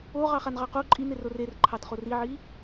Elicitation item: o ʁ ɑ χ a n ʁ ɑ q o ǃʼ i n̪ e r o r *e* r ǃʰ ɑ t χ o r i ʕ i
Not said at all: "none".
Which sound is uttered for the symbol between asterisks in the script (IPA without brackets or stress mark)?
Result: e